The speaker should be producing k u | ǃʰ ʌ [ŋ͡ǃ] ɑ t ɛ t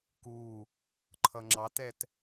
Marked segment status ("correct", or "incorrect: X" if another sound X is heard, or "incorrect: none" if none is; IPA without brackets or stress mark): incorrect: ŋ͡ǁ